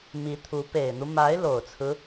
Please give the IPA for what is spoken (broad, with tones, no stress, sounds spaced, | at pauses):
m i˧˥ t̪ʰ u˧˥ p e˨˩ ɪ̯ n̪ u˦ m a˧˥ ɪ̯ l o˨˩ ʊ̯ t͡sʰ ɹ̩˦